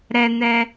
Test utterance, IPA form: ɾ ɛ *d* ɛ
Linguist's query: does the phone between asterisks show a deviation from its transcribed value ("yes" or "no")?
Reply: yes